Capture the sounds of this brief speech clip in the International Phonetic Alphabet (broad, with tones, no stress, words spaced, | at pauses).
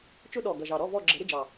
t͡ʃʊ˥ɗɔ˨˩ ɡʌ˨˩ʒɑ˨˩ɾɔ˧˥˧ vɔ˦˨ɡ͡ǁə˨˩˦ ɾɪ˧˥˧d͡ʒɑ˨˩